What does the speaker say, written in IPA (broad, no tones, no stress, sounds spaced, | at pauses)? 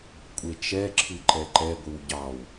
kʷʼ e t͡ʃ ɛ ǁʰ ɨ ǃ ɛ ǃ ɛ ɡʷ ɨ w ɟ ɑ w